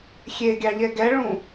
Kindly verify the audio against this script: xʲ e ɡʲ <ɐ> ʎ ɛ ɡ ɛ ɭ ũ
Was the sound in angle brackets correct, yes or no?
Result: no